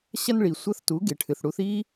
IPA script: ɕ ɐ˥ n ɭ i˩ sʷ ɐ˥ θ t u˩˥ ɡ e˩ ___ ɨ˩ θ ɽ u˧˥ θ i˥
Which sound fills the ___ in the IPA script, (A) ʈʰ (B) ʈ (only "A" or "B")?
A